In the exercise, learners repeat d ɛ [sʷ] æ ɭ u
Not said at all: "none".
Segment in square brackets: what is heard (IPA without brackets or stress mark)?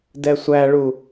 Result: sʷ